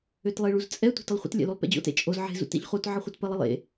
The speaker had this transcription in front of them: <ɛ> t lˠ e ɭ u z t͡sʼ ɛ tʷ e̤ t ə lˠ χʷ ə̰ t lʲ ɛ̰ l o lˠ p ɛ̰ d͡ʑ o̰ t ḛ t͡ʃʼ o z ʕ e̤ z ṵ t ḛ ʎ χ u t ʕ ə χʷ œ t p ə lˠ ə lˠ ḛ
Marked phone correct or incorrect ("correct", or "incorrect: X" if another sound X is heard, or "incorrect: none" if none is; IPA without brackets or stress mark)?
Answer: incorrect: ø